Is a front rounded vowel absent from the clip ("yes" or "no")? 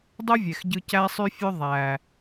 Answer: no